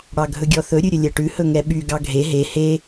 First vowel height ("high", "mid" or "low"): low